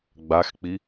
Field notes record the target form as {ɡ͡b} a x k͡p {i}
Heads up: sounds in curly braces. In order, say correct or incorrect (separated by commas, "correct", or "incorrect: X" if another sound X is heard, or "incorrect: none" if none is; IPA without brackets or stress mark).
correct, correct